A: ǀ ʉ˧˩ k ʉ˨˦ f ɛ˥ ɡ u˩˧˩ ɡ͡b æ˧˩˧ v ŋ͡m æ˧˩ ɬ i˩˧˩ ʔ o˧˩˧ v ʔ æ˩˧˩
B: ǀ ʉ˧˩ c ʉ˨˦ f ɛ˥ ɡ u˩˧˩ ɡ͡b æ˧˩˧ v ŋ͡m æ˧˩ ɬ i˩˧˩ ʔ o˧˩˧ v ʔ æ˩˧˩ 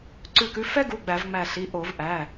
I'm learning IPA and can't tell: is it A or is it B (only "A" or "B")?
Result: A